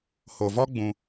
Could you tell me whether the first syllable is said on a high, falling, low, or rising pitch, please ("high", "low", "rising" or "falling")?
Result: low